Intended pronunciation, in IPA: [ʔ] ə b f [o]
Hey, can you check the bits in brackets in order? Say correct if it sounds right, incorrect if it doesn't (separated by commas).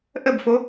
correct, correct